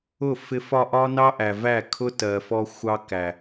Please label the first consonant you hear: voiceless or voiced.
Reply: voiceless